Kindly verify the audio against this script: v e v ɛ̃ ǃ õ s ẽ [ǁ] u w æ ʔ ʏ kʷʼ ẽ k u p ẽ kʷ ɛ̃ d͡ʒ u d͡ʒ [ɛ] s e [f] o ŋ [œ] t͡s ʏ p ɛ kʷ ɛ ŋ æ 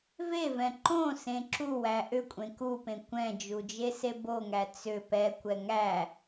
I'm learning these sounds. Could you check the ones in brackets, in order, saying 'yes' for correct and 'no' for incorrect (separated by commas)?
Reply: yes, no, no, no